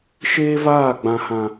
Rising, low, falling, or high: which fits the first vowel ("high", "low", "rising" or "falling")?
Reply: high